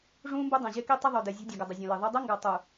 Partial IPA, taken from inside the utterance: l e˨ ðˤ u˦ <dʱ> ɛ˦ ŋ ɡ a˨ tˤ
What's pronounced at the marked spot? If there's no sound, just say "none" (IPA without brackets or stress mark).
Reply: dˤ